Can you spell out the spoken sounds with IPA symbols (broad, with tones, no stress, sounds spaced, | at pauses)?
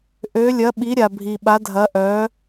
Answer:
ʔ ø˨˥ lʲ ɐ˨˥ ɓ i˨˥ ɾʲ a˨ bʱ i˨ ɓ a˨˥ dʱ ɐ˨˥ ʔ œ˨˥